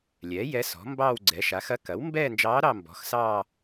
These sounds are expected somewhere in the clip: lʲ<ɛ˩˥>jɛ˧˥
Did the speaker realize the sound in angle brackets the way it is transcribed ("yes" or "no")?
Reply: yes